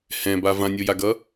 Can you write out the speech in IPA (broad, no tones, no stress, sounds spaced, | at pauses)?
h ɛ̃ b a v ã nʲ o j a ɡ ʌ